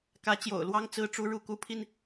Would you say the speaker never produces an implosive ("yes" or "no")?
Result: yes